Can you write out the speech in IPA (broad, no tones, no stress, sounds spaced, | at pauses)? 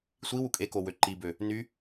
sʷ i w u kʼ e k o w ø ǃ i b ø | n y